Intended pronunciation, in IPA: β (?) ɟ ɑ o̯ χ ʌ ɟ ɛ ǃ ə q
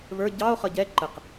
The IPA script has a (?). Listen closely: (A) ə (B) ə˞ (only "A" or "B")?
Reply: B